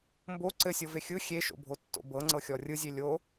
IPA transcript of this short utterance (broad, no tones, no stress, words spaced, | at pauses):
mbo ǀɘsʲɤve xʲɯ xʲeʃo̰bʱotːo̰ bɤŋ͡ǀɤxʲɔ rʲɯzʲe lʲo